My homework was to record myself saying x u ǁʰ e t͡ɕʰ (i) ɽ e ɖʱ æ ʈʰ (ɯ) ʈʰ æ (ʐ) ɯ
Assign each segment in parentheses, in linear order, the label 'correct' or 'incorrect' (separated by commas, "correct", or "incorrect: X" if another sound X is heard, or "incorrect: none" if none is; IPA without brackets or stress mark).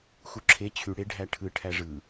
incorrect: y, correct, correct